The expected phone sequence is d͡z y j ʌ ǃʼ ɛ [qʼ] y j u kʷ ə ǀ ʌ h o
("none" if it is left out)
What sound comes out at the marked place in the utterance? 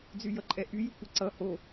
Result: ʔ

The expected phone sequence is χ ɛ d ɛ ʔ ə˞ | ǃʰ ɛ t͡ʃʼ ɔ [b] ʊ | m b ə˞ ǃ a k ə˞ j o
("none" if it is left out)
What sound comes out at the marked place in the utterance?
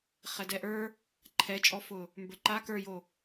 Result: f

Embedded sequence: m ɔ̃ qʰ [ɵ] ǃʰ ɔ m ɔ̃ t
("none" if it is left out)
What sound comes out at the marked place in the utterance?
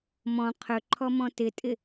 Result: ɵ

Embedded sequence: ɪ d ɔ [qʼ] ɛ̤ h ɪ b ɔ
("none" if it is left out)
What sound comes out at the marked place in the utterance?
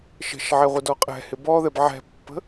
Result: qʼ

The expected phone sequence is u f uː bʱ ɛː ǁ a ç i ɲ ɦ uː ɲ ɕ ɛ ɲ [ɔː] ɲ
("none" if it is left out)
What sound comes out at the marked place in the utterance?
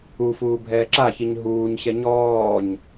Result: ɔː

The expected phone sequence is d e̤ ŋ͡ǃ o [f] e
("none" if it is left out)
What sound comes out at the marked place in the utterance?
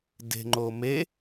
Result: m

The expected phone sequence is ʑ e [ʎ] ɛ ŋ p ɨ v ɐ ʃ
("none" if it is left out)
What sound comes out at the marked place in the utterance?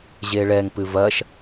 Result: ɭ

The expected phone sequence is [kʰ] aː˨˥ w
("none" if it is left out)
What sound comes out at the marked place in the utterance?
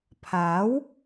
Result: pʰ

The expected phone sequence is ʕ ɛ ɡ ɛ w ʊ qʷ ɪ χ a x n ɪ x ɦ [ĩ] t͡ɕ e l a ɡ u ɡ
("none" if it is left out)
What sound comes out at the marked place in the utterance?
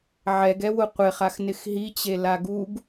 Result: i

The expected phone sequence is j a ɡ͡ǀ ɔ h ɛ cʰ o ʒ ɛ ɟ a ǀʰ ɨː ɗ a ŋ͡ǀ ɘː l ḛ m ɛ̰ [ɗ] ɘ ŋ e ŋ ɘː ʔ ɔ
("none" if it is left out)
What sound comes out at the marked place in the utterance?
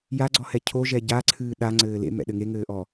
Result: ɗ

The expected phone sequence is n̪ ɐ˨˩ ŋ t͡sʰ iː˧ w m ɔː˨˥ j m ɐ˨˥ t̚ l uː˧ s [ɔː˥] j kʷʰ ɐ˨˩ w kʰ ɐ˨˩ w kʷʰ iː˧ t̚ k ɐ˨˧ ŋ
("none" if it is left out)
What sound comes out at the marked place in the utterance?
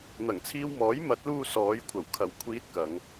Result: ɔː˨˧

